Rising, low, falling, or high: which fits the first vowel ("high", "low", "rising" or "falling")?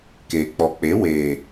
low